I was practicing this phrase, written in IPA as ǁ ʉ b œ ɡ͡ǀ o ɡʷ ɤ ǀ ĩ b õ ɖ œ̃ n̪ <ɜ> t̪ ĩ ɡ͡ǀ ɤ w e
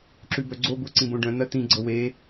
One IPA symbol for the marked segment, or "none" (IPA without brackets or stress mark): ɜ